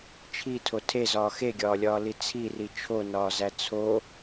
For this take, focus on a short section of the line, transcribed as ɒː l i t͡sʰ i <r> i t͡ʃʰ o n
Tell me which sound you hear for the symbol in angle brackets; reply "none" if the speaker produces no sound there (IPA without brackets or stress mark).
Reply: r